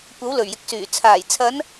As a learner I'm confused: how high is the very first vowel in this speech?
low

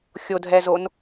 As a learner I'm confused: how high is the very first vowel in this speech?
mid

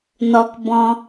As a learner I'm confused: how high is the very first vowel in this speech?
mid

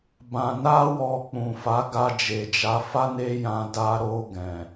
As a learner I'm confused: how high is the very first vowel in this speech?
low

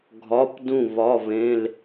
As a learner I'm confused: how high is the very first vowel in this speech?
low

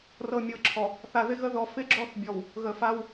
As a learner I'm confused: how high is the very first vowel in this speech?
mid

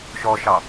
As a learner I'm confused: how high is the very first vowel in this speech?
mid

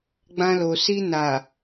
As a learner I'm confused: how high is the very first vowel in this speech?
low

